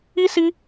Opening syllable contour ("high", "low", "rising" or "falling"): high